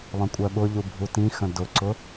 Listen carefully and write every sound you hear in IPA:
lˠə̃kʷʼɜɓʊʎu bʱutĩxə̃ dʊǀʊ

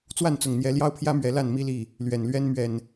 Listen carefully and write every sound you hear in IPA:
t͡swa˥˨nt͡sʊ˨˩ŋn̪jɛ˨˦ ljɑ˦ʊ̯pʰjä˦mɥɛ˨˦ la˥˨nmi˦li˥˨ | lɥɛ˨˩nlɥɛ˦n mɥɛ˨˩n

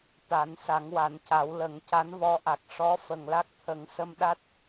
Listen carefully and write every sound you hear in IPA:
t̪a˨˩˦n sa˨˩˦ŋwa˨˩˦nca˨˩˦wlə˨˩˦ŋ ca˧˥nvɔ˧˥ʔa˨˩k̚ ʂɔ˧˥ fə˨˩ŋla˦˥k̚t̪ʰə˨˩˦ŋ sə˧mɗa˦˥t̚

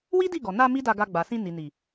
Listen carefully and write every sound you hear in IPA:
wi˦di˦˨ɡɔ˨ na˧ mi˦da˧ɡa˧ɡ͡ba˨ sĩ˧ni˨ni˨

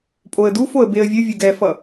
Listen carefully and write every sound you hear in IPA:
pʼoə̯dufoə̯ beə̯vʲɯ vʲuɡɛfʌ

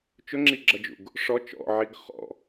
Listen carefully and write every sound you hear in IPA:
t͡ʃʊŋ͡ǁiɡ͡ǁʌd͡ʒṵɡ | ʂɔ t͡ʃɔ̰ʕiɡ χɔ̰

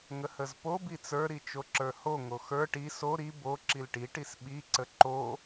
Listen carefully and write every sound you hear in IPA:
ŋəhəzpo bit͡sə˞ ɾit͡ʃoǁə˞ho ŋoxə˞ ʈi so ɾi bo ǁilʈi ʈisɓi ǀəǃo

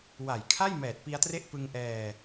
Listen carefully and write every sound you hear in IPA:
wa˨˩j kʰa˥˩j mɛː˨˩t̚pi˧a̯tre˦˥ʔ pɯ˧ŋʔɛː˧

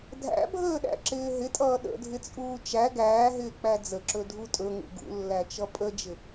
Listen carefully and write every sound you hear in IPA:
dʱæ̰bʱəːɗæ̰ǁɪː ɦɪtʼʌː ɗə̰dʱɪt͡sʼuː t͡ʃæ ɡæːɦɪːk͡pæ d͡zəǁɵdʱu tʼɵŋṵ ɡṵlːæt͡ʃʌ pʼəd͡ʒɪ

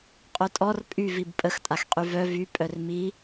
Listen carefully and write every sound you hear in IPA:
qʼœtʼɔr pʼyvib pʼəxtʼaxqʼy vœ vy pʼœrmi

